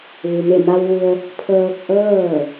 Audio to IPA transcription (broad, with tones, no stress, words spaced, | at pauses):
ʋu˩me˧˩ma˧wʋu˧ə̯ | pʰɤː˧k̚ʔɤː˥˨